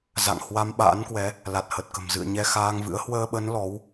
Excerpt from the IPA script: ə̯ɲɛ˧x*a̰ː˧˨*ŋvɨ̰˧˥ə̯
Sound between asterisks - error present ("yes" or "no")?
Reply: yes